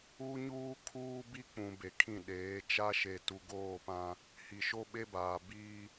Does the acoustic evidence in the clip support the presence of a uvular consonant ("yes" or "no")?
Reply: no